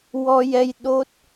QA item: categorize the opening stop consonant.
implosive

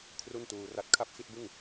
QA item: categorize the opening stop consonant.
aspirated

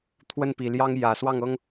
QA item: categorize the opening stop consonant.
aspirated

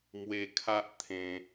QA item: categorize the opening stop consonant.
aspirated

